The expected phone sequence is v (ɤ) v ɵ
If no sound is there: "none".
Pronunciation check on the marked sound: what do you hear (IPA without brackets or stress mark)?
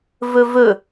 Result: ɵ